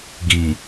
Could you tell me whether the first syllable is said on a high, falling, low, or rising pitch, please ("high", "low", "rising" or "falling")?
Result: low